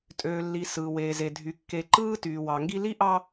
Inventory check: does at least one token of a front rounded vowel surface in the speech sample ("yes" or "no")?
yes